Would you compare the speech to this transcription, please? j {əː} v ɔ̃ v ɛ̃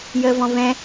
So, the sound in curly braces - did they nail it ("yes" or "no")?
yes